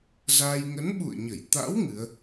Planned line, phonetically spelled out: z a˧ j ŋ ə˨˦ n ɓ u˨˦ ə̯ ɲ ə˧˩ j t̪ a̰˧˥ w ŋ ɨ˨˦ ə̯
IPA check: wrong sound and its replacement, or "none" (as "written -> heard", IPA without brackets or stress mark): u˨˦ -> ṵ˧˨